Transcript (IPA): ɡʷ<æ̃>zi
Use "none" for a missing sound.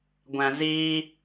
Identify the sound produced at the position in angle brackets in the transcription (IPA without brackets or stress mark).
æ̃